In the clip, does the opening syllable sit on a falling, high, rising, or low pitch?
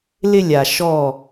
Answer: high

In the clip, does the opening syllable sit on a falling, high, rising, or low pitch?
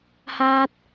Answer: high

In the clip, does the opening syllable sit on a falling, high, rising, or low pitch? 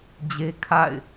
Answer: high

